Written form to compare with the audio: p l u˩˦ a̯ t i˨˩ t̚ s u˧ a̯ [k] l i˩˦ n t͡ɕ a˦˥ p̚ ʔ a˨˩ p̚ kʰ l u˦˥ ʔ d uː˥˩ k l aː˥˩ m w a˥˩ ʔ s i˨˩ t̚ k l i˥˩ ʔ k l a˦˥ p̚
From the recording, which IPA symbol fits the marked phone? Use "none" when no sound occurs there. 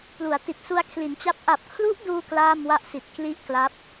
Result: kʰ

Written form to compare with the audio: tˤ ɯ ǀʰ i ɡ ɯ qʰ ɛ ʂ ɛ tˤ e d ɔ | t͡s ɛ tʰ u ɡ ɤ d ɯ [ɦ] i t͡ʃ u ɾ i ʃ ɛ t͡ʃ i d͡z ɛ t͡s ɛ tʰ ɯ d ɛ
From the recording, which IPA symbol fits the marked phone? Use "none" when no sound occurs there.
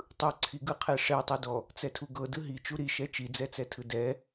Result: ɦ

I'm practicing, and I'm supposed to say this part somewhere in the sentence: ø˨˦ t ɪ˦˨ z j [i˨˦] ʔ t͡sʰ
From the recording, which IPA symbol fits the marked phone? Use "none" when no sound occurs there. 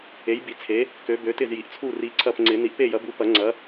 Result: i˨˦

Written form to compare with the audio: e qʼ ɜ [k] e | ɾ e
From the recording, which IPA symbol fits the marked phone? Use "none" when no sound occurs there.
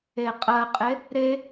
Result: qʼ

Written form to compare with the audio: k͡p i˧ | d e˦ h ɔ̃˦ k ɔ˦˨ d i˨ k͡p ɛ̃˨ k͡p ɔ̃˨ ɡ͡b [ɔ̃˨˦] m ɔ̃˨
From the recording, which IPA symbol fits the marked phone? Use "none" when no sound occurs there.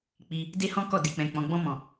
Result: ɔ̃˧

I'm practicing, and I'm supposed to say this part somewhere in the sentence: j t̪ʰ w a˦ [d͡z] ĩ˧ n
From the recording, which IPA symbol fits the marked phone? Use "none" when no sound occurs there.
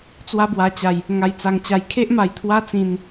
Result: t͡s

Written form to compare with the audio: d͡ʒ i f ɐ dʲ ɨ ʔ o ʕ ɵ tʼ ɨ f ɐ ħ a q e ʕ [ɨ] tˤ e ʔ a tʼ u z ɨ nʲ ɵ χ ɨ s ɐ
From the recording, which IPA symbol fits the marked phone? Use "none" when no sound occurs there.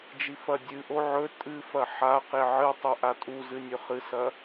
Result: ɨ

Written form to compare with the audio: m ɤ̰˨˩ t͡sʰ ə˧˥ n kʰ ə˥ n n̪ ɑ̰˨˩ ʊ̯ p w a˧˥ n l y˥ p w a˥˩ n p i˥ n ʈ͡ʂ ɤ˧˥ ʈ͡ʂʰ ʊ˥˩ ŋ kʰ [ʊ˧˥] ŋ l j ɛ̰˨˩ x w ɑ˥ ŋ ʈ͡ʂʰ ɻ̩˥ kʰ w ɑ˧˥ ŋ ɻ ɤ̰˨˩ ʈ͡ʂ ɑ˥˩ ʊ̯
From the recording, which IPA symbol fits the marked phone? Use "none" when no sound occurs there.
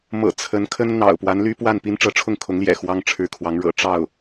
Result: ʊ˧˥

